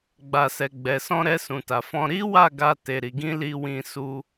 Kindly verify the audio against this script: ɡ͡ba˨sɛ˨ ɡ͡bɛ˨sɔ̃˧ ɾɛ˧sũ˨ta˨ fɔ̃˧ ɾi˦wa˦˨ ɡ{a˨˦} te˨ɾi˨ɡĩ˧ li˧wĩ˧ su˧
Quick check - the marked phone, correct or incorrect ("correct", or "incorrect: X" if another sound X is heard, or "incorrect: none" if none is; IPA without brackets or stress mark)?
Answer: incorrect: a˧